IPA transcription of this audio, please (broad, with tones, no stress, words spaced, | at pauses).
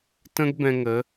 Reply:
tə̃˦ɡ bɛ̃˧ŋə˨˦